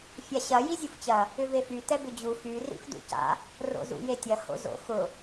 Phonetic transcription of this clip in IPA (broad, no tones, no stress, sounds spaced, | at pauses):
fʲ a ɕ ɐ j i zʲ u f t͡ɕ ɐ | ʏ v e f y t ɛ b ʏ d͡ʑ u f y r ḭ f d ṵ c a̰ | r o̰ z ṵ j e tʲ ɐ h o̰ z o̰ x ʊ